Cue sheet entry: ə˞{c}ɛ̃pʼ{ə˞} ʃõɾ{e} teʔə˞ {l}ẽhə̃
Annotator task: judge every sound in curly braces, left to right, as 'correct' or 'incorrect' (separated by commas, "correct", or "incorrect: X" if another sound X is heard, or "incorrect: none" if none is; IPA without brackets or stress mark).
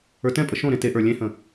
incorrect: t, incorrect: ə, incorrect: ẽ, incorrect: lʲ